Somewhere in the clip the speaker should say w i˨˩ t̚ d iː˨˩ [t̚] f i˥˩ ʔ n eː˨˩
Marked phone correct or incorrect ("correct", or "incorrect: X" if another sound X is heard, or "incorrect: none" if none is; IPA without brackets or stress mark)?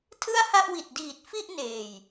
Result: correct